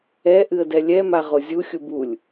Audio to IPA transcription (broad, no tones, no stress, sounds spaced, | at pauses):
ɛ ʔ ɨ ə̯ d ɛ lʲ ɛ m a ʁ o zʲ u xʲ u b u lʲ